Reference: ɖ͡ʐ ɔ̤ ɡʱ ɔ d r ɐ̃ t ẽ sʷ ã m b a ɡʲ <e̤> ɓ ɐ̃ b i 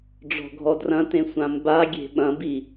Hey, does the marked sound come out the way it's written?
yes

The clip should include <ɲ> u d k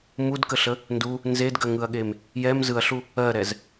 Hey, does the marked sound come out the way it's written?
no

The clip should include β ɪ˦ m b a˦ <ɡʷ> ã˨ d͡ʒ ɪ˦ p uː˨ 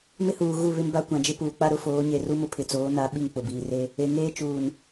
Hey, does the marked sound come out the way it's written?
no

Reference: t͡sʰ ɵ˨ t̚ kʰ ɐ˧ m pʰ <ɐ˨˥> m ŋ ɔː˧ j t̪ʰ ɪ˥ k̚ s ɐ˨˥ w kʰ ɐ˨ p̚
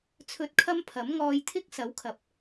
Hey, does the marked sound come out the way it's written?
yes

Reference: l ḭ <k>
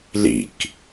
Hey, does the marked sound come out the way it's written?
yes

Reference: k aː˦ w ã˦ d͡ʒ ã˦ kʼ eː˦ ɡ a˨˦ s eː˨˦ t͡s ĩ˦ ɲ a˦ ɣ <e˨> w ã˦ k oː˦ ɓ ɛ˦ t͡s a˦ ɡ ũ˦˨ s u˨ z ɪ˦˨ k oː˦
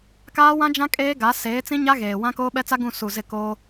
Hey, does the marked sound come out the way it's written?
no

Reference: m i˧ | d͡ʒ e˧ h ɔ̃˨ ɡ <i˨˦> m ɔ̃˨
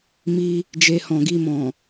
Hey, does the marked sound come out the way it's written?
no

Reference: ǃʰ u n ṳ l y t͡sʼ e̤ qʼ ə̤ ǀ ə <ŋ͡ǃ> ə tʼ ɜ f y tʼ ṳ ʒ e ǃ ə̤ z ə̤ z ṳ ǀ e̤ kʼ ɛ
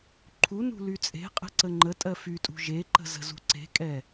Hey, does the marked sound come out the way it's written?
yes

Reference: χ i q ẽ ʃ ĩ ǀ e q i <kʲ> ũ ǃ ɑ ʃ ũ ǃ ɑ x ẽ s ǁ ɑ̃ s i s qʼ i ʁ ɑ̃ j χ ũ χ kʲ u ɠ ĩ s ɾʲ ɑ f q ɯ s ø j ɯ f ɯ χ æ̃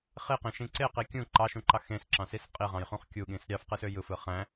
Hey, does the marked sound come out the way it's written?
yes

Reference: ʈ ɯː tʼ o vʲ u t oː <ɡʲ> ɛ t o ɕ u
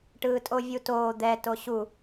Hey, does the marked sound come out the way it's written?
no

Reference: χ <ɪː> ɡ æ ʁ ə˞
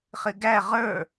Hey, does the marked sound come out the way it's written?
no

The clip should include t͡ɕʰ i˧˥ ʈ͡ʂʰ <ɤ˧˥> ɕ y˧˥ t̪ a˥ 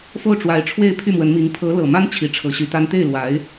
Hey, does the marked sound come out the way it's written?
yes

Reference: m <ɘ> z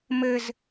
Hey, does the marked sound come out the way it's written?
yes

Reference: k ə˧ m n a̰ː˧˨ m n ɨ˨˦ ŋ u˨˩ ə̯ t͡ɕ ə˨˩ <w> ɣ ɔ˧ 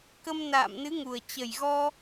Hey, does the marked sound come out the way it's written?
no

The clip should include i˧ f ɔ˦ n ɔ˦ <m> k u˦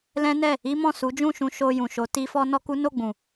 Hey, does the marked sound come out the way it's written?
no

